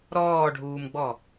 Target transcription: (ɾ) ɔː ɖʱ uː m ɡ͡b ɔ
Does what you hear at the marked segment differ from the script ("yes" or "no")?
no